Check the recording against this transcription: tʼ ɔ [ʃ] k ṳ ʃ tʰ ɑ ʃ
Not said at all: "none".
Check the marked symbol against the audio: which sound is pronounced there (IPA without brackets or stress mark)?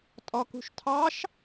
none